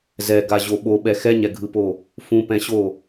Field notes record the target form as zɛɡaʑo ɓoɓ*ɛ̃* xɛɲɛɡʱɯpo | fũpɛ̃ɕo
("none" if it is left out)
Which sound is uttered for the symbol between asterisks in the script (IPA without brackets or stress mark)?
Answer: ɛ